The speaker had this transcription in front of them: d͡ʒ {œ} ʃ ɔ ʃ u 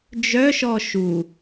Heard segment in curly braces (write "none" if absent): œ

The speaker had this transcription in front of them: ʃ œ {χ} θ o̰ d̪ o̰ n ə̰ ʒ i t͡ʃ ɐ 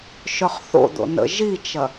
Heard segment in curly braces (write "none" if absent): χ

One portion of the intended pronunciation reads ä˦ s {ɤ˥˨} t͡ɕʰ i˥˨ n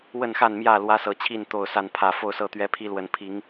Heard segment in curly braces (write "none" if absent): ɤ˨˦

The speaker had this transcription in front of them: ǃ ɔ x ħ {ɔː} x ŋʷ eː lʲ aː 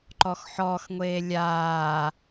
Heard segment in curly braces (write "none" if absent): ɔː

